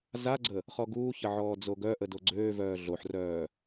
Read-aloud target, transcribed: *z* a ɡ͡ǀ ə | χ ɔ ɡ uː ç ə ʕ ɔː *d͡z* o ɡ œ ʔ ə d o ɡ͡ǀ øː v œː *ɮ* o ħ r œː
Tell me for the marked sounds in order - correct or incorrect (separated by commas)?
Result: correct, correct, correct